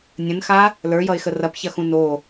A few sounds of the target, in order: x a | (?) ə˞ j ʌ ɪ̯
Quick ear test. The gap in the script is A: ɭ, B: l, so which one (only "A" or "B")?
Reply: B